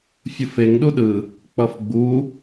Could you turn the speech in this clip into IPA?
fʲɯfeŋ ɗuɗɯ | k͡pʌfɡ͡bu

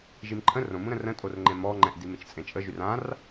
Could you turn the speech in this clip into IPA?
ʒimǃʰə̃ rõmũɾə̃ rə̃ tʼorŋ͡ǃẽmɔŋ͡ǃɛ̃ʔ dimet͡ʃt͡sʼẽt͡ʃʼə ʒyrãr

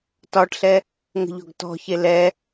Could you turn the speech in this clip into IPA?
tɒʈɬɛ | ŋə̤ʎɔ̤ɡtɔ̤çe lɛ

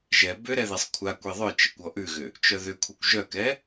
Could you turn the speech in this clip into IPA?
ʒɛ bʏ ɾɛðesˤkʷʰakʷe ðˤœt͡ʃekʷ ɔʔʉɣʏ | t͡ʃœðʏkʷʰɛkʷ ʒœkɛ

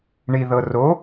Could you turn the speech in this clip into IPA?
ɳiðɤ ro

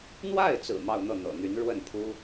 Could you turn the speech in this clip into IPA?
n̪wa˥˩ɪ̯t͡sɹ̩˨˩ mɑ˥˧ʊ̯n̪ɤ˥˩n̪ɤ̰˨˩n̪y˧˥n ɻwə˥˩n pʰu˥

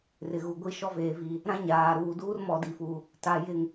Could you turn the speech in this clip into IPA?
rɪ˨ ɣu˨ɡʷi˦ʃɔ˦ veː˨vi˨ | ɾã˦ ɲaː˨ɾuː˨duː˦r mɔ˨di˨fu˨ | ta˨ jɪ˨ŋ

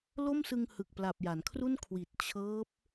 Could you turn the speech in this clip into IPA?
lo˥˩msɯ˧ŋhɯ˨˩k̚pla˨˩p̚ ja˩˦nkʰru˥˩n kʰwi˨˩t̚ t͡ɕʰɤː˦˥p̚

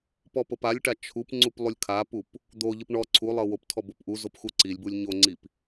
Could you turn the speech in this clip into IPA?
pɔpɤpalʲʈa t͡ʃʰup ŋ͡ǀuplˠulʲkʰapup | d̪oʎɯp ɳɔ ǀʰulˠɤ woptʰɔ bopʔuzop xuǀilʲbulʲ ɲoŋ͡ǀip

